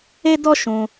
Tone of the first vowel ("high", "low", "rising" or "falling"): high